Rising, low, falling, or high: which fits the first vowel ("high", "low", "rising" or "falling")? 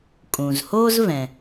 low